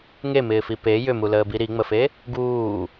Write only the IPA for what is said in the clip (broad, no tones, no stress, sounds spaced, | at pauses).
ŋ e m ɪː f i p e j ʏ m u l əː b i ɾ i ŋ͡m ə f e | ɡ uː